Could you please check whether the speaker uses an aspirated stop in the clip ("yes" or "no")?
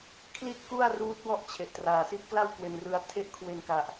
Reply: yes